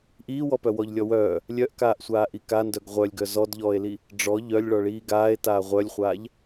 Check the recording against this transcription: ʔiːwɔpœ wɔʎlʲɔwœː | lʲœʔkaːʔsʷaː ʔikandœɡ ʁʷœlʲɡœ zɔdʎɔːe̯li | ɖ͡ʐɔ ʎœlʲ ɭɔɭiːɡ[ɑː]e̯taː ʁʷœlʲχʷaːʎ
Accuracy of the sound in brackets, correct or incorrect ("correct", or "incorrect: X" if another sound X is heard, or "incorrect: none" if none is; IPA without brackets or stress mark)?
incorrect: aː